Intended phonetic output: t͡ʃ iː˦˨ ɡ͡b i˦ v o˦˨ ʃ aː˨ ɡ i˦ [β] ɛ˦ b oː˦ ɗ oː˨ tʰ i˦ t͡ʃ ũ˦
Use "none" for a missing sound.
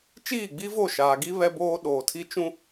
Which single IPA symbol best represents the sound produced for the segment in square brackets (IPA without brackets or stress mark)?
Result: β